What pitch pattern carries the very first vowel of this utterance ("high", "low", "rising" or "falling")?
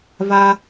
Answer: high